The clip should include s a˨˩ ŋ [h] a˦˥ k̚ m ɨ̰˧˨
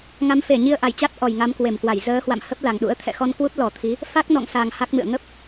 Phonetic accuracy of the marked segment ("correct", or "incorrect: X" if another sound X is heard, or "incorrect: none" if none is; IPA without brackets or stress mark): correct